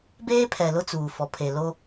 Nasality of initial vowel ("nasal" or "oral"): oral